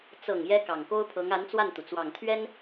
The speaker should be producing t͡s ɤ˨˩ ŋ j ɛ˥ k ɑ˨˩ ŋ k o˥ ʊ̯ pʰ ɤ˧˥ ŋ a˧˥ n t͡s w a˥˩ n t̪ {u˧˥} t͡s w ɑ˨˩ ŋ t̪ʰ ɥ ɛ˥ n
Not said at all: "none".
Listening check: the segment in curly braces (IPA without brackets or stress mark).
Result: u˩